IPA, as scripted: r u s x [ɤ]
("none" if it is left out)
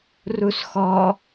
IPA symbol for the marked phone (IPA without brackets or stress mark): ɔ